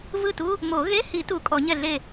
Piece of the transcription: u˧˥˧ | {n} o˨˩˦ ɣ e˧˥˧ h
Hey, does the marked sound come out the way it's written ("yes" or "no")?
no